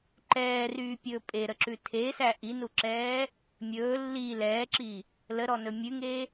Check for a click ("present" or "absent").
present